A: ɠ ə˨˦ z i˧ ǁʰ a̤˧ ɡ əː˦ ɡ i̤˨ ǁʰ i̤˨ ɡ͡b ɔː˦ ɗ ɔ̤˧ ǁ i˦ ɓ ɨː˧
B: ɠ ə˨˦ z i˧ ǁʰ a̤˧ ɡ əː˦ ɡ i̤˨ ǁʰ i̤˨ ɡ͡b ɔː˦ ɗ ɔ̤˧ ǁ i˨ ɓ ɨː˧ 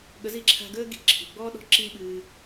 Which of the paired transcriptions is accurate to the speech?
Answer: A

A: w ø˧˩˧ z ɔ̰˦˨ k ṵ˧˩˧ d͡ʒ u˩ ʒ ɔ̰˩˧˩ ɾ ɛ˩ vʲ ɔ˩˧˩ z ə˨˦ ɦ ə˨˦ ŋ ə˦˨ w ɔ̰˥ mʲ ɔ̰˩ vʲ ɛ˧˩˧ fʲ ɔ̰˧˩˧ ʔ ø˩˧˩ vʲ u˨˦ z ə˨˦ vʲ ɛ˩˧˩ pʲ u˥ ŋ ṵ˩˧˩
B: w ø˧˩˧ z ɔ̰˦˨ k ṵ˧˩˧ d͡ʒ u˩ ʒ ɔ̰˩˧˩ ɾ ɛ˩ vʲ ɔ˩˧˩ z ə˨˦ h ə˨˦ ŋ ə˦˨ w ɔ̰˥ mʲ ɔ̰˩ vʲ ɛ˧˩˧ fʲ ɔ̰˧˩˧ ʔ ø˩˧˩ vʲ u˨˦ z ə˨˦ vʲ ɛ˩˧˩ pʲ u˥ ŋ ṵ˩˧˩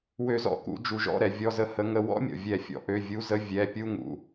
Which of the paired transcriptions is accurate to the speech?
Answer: B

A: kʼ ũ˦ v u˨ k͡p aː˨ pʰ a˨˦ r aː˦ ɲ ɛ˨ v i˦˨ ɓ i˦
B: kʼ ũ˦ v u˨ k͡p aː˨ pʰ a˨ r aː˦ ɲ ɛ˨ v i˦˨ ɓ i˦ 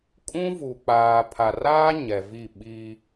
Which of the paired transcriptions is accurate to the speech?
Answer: B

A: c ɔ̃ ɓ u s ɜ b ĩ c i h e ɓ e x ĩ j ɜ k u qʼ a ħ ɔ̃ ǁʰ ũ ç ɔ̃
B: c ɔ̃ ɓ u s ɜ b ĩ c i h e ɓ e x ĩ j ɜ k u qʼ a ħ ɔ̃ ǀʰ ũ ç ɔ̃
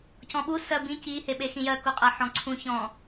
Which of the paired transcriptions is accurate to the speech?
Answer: B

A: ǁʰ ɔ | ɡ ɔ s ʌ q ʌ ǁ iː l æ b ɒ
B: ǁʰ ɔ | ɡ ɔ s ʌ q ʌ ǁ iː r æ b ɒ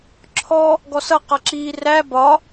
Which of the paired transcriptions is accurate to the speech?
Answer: B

